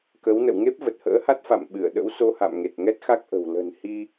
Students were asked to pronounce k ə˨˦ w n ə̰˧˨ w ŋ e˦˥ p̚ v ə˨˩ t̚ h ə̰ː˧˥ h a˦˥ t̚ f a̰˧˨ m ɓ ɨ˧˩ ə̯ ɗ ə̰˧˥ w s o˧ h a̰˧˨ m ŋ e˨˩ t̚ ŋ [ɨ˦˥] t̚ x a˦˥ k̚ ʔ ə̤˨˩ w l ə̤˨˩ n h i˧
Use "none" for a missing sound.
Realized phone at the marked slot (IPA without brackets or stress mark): ɛ˦˥